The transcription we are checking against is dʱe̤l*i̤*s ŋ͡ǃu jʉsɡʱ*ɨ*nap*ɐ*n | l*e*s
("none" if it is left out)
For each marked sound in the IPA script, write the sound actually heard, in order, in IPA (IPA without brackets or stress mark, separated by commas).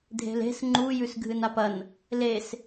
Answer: e̤, ɨ, ɐ, e